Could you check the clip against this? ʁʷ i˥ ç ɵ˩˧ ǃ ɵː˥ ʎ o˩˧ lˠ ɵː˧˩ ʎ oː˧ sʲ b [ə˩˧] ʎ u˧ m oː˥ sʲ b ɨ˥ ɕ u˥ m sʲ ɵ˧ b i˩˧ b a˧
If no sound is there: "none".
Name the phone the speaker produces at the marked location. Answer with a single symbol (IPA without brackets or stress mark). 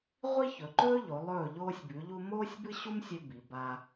ʉ˩˧